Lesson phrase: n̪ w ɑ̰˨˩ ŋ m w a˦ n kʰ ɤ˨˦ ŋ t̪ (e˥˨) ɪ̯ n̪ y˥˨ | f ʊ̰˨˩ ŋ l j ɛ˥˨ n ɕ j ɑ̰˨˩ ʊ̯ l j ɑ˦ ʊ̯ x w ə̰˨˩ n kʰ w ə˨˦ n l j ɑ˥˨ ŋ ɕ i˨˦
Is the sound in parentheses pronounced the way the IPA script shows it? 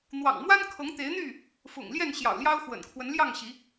no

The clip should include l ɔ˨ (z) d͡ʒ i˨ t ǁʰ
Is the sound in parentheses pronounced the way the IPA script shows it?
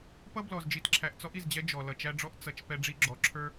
yes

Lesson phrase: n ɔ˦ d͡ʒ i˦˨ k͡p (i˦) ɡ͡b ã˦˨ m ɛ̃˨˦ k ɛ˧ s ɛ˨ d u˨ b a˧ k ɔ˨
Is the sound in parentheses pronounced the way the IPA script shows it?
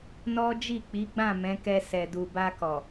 no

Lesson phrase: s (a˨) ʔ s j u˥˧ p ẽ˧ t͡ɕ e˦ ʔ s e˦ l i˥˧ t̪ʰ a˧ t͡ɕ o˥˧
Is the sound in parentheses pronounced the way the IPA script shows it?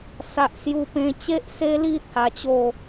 no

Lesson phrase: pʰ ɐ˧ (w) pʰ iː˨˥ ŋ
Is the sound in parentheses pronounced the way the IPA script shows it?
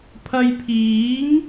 no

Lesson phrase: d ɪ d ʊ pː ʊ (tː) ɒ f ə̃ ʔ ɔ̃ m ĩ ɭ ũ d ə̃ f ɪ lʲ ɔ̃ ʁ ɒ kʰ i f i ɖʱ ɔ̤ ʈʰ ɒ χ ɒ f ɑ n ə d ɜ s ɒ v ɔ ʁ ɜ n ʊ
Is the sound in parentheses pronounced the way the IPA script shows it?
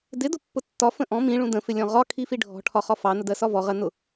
yes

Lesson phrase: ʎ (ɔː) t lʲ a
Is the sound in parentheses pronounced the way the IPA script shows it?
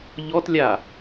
no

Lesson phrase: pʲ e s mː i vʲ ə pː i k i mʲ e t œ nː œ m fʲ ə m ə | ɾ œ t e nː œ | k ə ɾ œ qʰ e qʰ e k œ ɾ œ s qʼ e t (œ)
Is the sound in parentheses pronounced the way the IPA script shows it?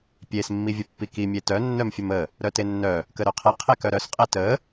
no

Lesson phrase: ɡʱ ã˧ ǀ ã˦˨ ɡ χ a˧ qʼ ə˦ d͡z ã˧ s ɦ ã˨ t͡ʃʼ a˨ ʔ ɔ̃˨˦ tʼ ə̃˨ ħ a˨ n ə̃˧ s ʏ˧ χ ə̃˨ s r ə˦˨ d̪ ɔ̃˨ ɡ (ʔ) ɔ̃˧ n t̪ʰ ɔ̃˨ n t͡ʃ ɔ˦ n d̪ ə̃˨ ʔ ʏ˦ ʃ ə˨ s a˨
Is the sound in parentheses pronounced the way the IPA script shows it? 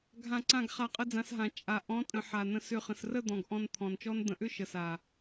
yes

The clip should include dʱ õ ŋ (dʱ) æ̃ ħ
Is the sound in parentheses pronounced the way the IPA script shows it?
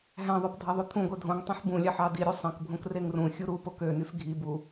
no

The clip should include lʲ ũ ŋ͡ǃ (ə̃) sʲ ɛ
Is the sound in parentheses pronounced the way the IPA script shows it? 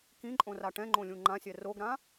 no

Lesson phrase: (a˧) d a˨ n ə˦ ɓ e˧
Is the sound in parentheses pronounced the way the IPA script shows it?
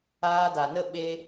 no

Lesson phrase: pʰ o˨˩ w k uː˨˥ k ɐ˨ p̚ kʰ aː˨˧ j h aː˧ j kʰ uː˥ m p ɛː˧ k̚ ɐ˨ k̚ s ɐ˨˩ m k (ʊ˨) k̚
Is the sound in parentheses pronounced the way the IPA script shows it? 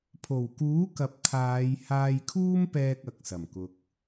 yes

